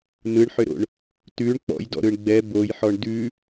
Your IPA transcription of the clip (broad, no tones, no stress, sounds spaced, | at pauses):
n ɯ ɳ ħ ʏ ɾ o̰ ɳ | t ʉ ɳ k͡p ɔ̰ j d ɔ̰ ɾ ɯ ɳ ɡ͡b ɛ b o j ħ ɔ ɳ d ʉ